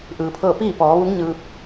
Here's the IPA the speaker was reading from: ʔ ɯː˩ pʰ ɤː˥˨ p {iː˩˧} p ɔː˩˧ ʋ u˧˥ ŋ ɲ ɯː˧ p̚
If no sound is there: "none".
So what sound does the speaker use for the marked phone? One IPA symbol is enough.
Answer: iː˥˨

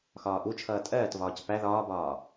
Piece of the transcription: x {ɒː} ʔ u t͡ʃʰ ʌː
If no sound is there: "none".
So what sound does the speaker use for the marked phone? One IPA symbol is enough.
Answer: ɒː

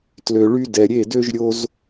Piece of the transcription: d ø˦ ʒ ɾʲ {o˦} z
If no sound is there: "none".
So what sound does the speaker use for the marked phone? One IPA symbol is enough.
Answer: o˦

